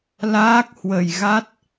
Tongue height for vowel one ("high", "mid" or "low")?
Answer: low